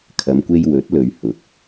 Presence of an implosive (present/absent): absent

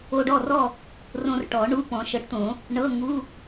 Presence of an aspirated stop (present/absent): absent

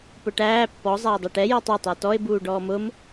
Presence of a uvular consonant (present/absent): absent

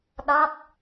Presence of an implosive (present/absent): present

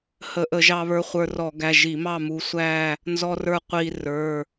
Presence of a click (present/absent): absent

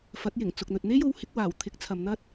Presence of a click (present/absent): absent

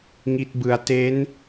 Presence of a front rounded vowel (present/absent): absent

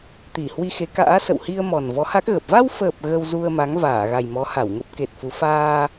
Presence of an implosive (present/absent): absent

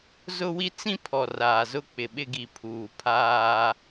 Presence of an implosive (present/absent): present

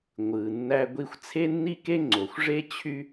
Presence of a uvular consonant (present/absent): absent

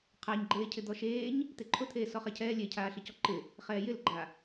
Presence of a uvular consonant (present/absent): present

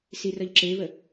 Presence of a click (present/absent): present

